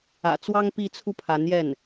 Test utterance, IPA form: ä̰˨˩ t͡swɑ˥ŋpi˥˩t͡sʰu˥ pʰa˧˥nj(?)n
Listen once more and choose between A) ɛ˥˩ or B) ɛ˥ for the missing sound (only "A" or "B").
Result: A